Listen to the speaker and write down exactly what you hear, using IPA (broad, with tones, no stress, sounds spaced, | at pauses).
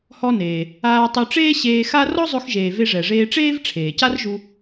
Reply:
h ɔ˧ n eː˩ | aː˧ tˤ ɵ˧ ʈ͡ʂ eː˥ ɕ eː˧ x a˥ r ɔ˥ zˤ ɵ˧ x ʒ eː˩ v e˧ ʐ ɛ˩ ʐ eː˧ ʈ͡ʂ eː˥ v ʈ͡ʂʰ eː˩ c a˥ r ʒ u˧